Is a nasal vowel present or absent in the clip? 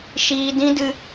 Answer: present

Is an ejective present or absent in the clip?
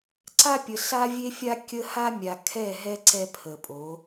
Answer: present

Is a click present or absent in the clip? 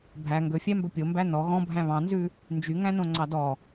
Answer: present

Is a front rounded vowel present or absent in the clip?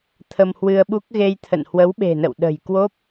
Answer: absent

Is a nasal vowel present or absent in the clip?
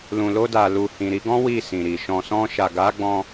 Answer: present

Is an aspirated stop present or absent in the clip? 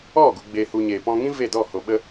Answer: absent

